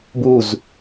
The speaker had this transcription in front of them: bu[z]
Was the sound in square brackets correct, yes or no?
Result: yes